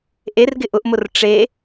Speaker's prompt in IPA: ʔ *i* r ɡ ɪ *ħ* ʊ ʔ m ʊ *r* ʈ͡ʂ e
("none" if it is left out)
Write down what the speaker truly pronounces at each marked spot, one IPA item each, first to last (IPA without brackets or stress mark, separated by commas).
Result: e, ʔ, r